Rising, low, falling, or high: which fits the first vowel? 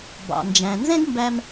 low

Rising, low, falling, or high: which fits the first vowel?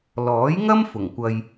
rising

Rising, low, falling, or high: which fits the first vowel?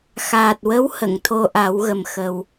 low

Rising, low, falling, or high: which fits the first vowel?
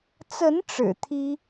rising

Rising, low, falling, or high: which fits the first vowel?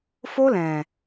high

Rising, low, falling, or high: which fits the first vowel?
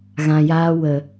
low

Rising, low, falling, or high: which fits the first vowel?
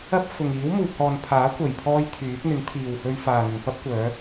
high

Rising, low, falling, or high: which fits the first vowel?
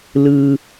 low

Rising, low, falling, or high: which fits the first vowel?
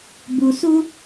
low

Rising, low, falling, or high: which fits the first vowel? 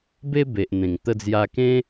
high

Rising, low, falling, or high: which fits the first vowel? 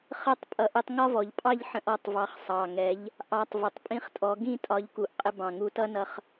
falling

